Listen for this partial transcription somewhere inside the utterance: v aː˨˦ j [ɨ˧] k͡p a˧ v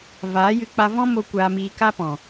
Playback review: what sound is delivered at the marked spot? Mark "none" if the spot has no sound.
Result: ɨ˧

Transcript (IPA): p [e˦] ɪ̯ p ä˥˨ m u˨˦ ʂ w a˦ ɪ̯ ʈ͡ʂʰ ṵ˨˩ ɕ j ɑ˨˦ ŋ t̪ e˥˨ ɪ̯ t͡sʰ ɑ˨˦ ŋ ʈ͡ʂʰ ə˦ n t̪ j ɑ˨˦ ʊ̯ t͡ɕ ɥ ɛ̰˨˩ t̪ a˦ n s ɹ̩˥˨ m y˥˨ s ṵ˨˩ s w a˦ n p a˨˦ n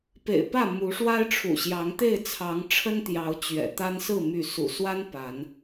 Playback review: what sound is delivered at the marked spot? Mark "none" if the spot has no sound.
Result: ḛ˨˩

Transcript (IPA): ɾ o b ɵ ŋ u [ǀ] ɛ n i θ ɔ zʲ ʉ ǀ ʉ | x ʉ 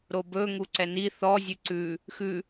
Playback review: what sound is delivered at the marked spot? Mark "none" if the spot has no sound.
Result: ǀ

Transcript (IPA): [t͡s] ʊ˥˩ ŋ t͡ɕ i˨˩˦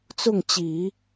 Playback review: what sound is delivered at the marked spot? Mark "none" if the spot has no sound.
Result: t͡s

